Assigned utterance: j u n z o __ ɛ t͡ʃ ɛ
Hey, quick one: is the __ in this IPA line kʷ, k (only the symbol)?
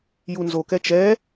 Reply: k